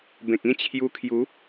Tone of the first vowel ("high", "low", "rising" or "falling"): low